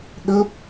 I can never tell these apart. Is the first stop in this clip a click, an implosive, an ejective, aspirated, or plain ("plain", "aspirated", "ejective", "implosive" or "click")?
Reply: implosive